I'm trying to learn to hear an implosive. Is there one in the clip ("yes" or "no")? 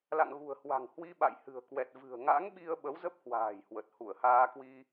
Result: yes